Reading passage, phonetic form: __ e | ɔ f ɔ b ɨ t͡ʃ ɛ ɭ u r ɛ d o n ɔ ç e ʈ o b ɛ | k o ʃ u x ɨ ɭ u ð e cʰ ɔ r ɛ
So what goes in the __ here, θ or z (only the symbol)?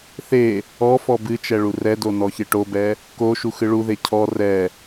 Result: θ